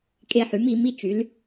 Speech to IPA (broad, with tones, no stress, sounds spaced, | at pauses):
kʼ e˦ ħ y˨˥ m i˨˥ m i˦ t͡ʃ y˨˥ l